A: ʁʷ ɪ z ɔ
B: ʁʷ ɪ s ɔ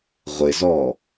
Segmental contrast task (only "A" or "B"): A